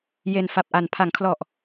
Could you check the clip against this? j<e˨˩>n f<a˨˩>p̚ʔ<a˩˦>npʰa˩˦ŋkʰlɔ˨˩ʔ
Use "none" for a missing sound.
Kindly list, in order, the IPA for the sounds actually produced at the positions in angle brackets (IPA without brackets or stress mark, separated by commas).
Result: e˨˩, a˨˩, a˩˦